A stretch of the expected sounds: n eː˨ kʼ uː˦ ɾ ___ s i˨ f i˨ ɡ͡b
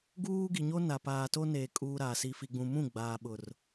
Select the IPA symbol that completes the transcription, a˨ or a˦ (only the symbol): a˨